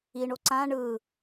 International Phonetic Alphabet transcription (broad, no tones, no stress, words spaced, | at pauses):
iɳo ǀã ɳɯ